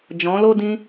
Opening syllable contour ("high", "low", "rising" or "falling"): rising